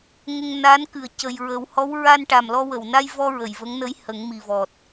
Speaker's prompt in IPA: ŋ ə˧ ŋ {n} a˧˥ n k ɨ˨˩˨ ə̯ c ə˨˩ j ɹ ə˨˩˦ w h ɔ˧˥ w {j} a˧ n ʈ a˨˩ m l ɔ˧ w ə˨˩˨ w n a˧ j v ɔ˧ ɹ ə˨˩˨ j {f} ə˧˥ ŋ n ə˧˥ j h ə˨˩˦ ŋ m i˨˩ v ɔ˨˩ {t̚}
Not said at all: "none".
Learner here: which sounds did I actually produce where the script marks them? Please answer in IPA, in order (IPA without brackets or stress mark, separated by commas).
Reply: n, ɹ, v, t̚